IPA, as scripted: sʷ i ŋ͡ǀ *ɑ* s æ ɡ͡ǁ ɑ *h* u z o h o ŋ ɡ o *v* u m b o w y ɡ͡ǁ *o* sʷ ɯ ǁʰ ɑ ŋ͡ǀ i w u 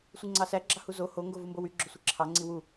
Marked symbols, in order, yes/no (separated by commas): yes, yes, yes, yes